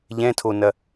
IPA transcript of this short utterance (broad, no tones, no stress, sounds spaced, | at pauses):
ʎ ɛ̃ tʰ o n ɐ